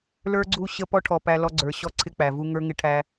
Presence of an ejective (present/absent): absent